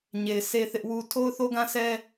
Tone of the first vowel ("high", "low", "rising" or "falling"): low